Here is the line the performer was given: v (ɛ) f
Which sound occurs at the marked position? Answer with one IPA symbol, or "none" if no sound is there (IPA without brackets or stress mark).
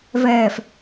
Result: ɛː